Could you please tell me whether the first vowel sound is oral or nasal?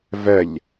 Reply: oral